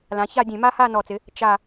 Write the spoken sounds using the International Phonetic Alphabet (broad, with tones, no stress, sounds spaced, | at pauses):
l ã˩˧ ç a˥˧ dʲ ẽ˧˩˧ m a˥ h a˥˧ n ɔ˨˩ t͡s ɪ˩˧ | t͡ʃ a˨˩